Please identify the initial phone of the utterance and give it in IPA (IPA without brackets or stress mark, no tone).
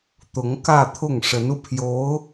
t̪